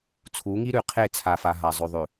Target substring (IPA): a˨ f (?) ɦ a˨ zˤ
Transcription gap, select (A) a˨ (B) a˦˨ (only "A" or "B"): A